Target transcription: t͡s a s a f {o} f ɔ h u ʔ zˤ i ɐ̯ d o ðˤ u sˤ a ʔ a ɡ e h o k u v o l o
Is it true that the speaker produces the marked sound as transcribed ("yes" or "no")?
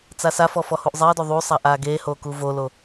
no